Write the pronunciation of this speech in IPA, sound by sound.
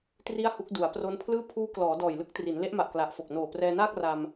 t r i˥˩ a̯ h u˦˥ k̚ d u˩˦ a̯ p r o˦˥ n pʰ l ɯː˥˩ pʰ uː˦˥ k l ɔː˩˦ d ɔː˨˩ j l ɯ˦˥ k̚ t r i˩˦ n l e˦˥ ʔ m a˨˩ ʔ k l a˨˩ ʔ f o˨˩ k̚ n oː˨˩ p r ɛː˧ n aː˥˩ k̚ r a˧ m

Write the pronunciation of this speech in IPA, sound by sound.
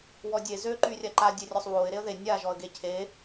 w ɔ dʲ e z ø ǃ y rʲ a ǃ a dʲ e rʲ ɔ sˤ w o ɪ̯ ɾ e ə̯ ð e nʲ a ʒ ɔ ə̯ ɡ e cʰ e

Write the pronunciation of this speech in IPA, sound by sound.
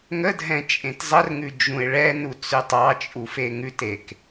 ŋ ə dʱ ɛ̃ t͡ʃʼ ẽ t zˤ ə r ŋ ʉ d͡ʒ ũ ɪ̯ ɭ ɛ n u t͡s ʉ tˤ ɑ t͡ʃʼ u f e ŋ ʉ t e k

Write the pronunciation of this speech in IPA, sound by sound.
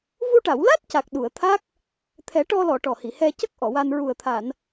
v u˧ ʈ a˨˩˨ w l a˦˥ t̚ c a˨˩ k̚ ɗ u˨˩˨ ə̯ t̪ʰ a˦˥ k̚ | t̪ʰ ɛ˨˩˦ ʈ ɔ˧ l ɔ˨˩˨ ʈ ɔ˨˩ h i˨˩˨ h ɛ˧ c ə˦˥ k̚ ʔ ɔ˨˩˨ w a˧ n ɹ u˨˩ ə̯ t̪ʰ a˨˩˨ n

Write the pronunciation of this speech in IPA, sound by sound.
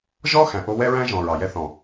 ʒ ɔ˦ x æ̃˨ ʔ o˧ w ɛ˦ ɹ æ̃˦ ʒ ɔ̃˨ ɹ ɑ˨ j ɛ˧ θ ɔ̃˨

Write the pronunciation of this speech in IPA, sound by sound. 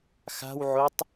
x a̤ w ʕ o tˤ

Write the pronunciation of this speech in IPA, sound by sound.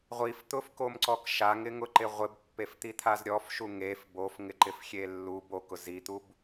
ʁʷ i f t̪ ʊ f k o m ǀ ɔ k ʃ a ŋ ɪ ŋ ʊ ǃ ɪ ʁʷ ɪ b pː e f t̪ i t̪ʰ a z ɾʲ ɔ f ʃ u ŋ e f b o f ŋ ɪ ǃ ɪ f xʲ e lː u b o k ʊ z i t̪ u b

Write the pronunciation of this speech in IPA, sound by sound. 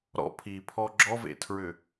ɾ ɔ̰ pʰ iː pʰ ɔ ɡ͡ǁ ɔ v ḛ tʰ ɹ ʏ

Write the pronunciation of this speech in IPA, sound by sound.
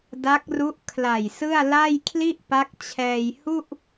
d a˦˥ k̚ r u˦˥ ʔ kʰ l a˨˩ j s ɯ˥˩ a̯ l a˥˩ j kʰ l i˥˩ ʔ p a˦˥ k̚ t͡ɕʰ ɛː˧ j h u˥˩ ʔ

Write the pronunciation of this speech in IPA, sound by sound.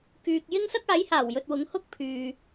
k yː˨ k̚ j ɪ˥ ŋ s ɐ˥ k̚ aː˨˥ j h aː˨˩ w j ɵ˨ t̚ w ʊ˨˥ ŋ h ʊ˥ k̚ pʰ yː˨

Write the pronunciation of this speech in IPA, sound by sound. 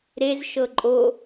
ɾ e z ʃ ɤ ǃʼ o

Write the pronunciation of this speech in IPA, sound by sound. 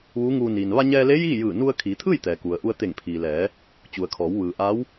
ʋ uː˧˥ ŋ uː˧ n iː˩ n ʋ a˧ ɲ ɛː˧ l eː˧˥ j iː˥˨ j ɯː˧˩ n u˧ ə̯ kʰ iː˩˧ t̪ʰ ɯː˥˨ j t̪ ɛː˩ k u˩ ə̯ ʔ u˧ ə̯ t̪ e˧˩ ŋ pʰ iː˩ l ɛː˩˧ | t͡ɕ u˩ ə̯ kʰ ɔː˩˧ w ʋ ɯː˩ ʔ a˧˥ w

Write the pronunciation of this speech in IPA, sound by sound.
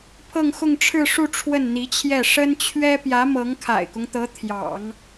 pʰ ɤ˥˧ ŋ x ʊ˥˧ ŋ ʈ͡ʂʰ ɻ̩˥˧ ʂ u˥˧ ʈ͡ʂʰ w ə˥˩ n n̪ i˧˥ t͡ɕʰ j ɛ˥˩ ʂ ə˥ n t͡ɕʰ ɥ ɛ˥ p j ä˧˥ m ɤ˧˥ ŋ kʰ a̰˨˩ ɪ̯ k ʊ˦ ŋ t̪ ɤ˧˥ t̪ʰ j ɑ̰˨˩˦ ŋ

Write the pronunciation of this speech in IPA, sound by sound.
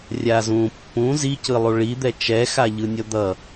rʲ a z ũ pː ũ z i c ɯ lˠ u ɭ i d̪ ɛ t͡ʃ ɛ x a ʎ ɯ nʲ ʌ d̪ ʌ

